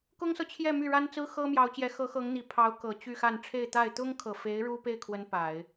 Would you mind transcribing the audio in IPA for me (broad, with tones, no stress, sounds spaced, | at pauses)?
k ʊ˥ ŋ s ɤ˨ t͡ɕʰ j ɛ˥˧ m y˥˩ ɻ a˥ n t͡s ɹ̩˥ x ɤ˥ m j ɑ˧˥ ʊ̯ t͡ɕ j ɛ˧˥ x ɤ˧˥ x ɤ˧˥ ŋ n̪ i˨˩ pʰ ɑ˧˥ ʊ̯ k ɤ˨˩ t͡ɕ y˥˧ x a˥˧ n ʈ͡ʂʰ e˥˧ ɪ̯ t̪ a˥˩ ɪ̯ t̪ ʊ˥ ŋ kʰ ɤ˨˩ f e˧˥ ɪ̯ ɻ u˥ p e˥˩ ɪ̯ kʰ w ə˧˥ n p a˨˩˦ ɪ̯